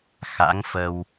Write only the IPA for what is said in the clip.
x a̰˧˥ ŋ f ə˧ w

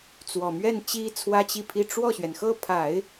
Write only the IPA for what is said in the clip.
t͡s w ɔ˨˩ m ɥ ɛ˥˩ n t͡ɕ i˥ t͡sʰ w ä˥ t͡ɕ i˥˩ pʰ i˥ ʈ͡ʂ w ɔ˥˩ ɕ ɥ ɛ˩ n x ɤ˥˩ pʰ a˨˩˦ ɪ̯

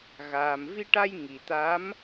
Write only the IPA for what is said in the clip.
ɣ aː˨˩ m v i˧ ʈ a˧ j ŋ i˨˩ t̪ a˧˥ m

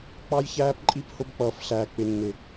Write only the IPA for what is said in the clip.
k͡p ɑ˦ j ç æː˦ p ǃʼ i˦ p h ʊ˦ b k͡p ʌː˨ f ɬ æː˨ k͡p ɪ˨ nː ɪ˨

